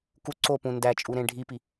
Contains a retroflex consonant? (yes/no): yes